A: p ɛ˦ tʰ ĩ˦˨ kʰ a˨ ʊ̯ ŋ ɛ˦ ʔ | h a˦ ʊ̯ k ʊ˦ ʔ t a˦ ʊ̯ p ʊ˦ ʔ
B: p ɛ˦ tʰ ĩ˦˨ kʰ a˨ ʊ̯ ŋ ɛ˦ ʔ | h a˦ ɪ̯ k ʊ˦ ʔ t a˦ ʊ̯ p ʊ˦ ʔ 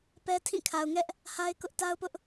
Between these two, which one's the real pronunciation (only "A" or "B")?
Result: B